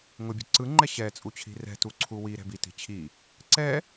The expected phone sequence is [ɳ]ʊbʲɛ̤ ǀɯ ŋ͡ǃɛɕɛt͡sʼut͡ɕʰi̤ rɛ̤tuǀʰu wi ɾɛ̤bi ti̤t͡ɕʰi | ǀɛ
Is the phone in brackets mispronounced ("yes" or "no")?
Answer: yes